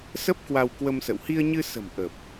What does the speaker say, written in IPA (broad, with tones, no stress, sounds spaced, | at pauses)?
s ə˦˥ p̚ k w a˧ w k w ə˧ m s ə̰˧˨ w h i˧ ə̯ ɲ ɨ˧ s ə̤˨˩ m ʔ ə˨˩ p̚